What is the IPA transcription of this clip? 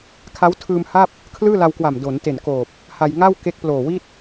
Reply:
kʰa˦˥wtʰɯː˧mha˥˩p̚ | kʰlɯː˥˩la˧wkwa˨˩m do˩˦nte˨˩n koː˨˩p̚ | ha˧jŋa˥˩w ke˦˥k̚ploː˨˩wi˥˩t̚

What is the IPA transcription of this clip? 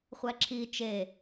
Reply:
χʷæǁʰi t͡ʃe

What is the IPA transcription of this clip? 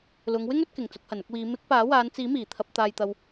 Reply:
lʊ˨˧ŋwɪ˥ŋ ɵ˨˥t̚kɪ˨˩ŋ t͡sʊ˨˥k̚hɐ˨˩nʊ˨˥k̚wiː˨˧ mɪ˨˥k̚ paː˨˥waː˨˧n t͡siː˨˥miː˨˩ t̪ʰɐ˨p̚ t̪aː˨jt̪ɐ˨w

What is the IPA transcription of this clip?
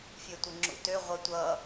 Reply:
fʲøtʷɘŋ͡ǁṵtø ʁʷʌtʷʌ

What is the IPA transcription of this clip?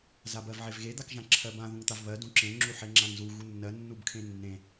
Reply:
zabɜvʕevɣe d̪akʒãǁʰɜbã ðũŋt̪avβɜ dũǁẽ ŋ͡ǁuħeŋ͡ǁãŋzu ɣunːɜ nːubkʰẽnːẽ

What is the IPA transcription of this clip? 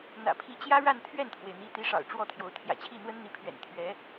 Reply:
n̪ä̰˨˩pʰi˧˥t͡ɕjä˥ ɻa˥˧nt̪ʰɥɛ˥˩nt̪ʰwe˩ɪ̯ n̪i˧˥t̪i˧˥ʂɑ̰˨˩ʊ̯ ʈ͡ʂwɔ˥˩t̪ʰjo˧˥ʊ̯ t̪ʰjä̰˨˩t͡ɕʰi˥˩n̪wə˥n n̪i˧˥pʰɥɛ̰˨˩n t̪ʰɥɛ˧˥

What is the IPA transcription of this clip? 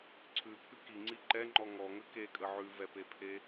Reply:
ǀʰʉpʰʉ kiŋ͡ǀi ǃɛŋ͡ǃɔ ŋɔŋə kekʼə ʕʉvɛpepʰe

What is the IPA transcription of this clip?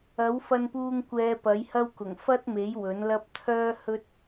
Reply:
ɐ˨˥wfɐ˧npuː˧ŋ kʷɛː˧pɐ˨˥jhɐ˥wkʊ˨˩ŋ fɐ˥t̚me˨˥j wɵ˨˥nlɐ˥p̚ t̪ʰœː˥hɵ˥t̚

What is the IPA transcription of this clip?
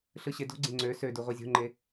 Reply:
ɬɯɕedo̤ɡ͡ǀẽ ŋ͡ǀø sødu ʁʷezʲo̤ŋ͡ǃe

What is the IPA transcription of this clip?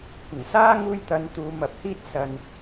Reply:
kʷɪ˨˩ŋsaː˥ ŋuː˧jt̪ɐ˨˧n t̪uː˨˧mɐ˨˥p̚hiː˥t̚ sɐ˧n

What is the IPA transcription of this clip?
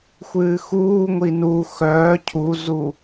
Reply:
xʷɨːxuːŋʷi nu xœː cʰuzu

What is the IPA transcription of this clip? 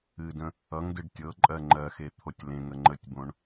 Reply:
ɨdə̃ | ʌŋdɨɖ tʲɤǃʼɜ ŋ͡ǃɜxe t̪ʰotʲlẽŋə ŋ͡ǃətʲbõɳ

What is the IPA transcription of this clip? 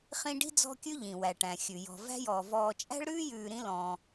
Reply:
χĩ˦ɖi̤˥d͡zɔ̤˦ kʲʉ˥ʎĩ˩wæ˩ʈæ̃˩ xʲʉ˩jɔ̤˨væ̤˥jɔː˨ vɔː˨t͡ʃʼæ̤˥ɭ ɾʉː˥jʉː˨ ɾĩ˦lɔ̃ː˨

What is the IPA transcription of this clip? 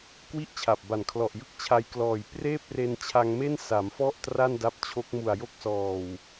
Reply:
kwi˥˩ʔt͡ɕʰa˨˩p̚ba˨˩n kʰlɔ˨˩ʔjɯ˥˩k̚t͡ɕʰa˧jklɔː˨˩j preː˥˩p̚re˧nt͡ɕʰa˧ŋme˥˩n sa˩˦mfɔ˥˩ʔ tra˥˩nda˦˥p̚t͡ɕʰo˦˥k̚mu˨˩a̯ jo˥˩k̚sɔː˨˩w

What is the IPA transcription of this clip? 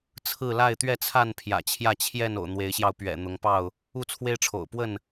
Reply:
t͡sʰɹ̩˥˨ la˥˨ɪ̯t̪ɥɛ˥˨t͡sʰa˥˨n pʰjä̰˨˩t͡ɕʰjä˥˨ t͡ɕʰjɛ˥˨n o̰˨˩ʊ̯n̪we˨˦ɪ̯ɕjɑ˧ʊ̯ pɥɛ̰˨˩ n̪ʊ˨˦ŋpɑ˥˨ʊ̯ | u˥˨t͡sʰwe˦ɪ̯ʈ͡ʂʰo̰˨˩ʊ̯pwə˥˨n

